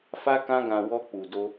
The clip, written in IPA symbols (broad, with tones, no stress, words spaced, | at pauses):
fa˦kã˦ɡã˧ wɔ˦k͡pu˧do˦